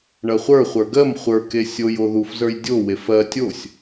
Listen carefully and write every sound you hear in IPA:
ɳɐχʷə˞χʷə˞ ɡɜm χʷə˞ke sʲojo ðufzə˞j dʲowef ɜ tʲosʲ

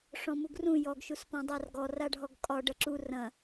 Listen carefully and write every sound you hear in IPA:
ʂɔ̃muɡrũ jɔɡ ʃuspɔ̃dˤarɡɔr aɖʱɔɡkʼɒ ɖɐǁu rɐ̃

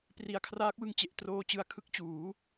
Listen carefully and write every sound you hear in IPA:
pri˩˦a̯kʰraː˦˥k̚wɯ˧ŋ t͡ɕe˨˩ʔtroː˧t͡ɕɯ˧a̯ kʰɯ˦˥k̚t͡ɕuː˩˦

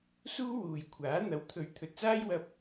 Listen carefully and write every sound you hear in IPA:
suː˥wuː˨jkʷʰaː˨˥ n̪ɐ˨˥wt̪ʰɵ˨˥ɥ t̪ʰɵ˨t̚t͡saː˥jwɐ˧p̚

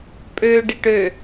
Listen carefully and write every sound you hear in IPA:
pʼøɖɪʈ ø

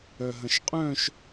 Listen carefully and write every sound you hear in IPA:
œɦɐ̃ʃqʼœ̃ʃ

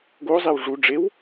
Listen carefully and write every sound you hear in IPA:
ɡozˤew ʐu ɖ͡ʐew

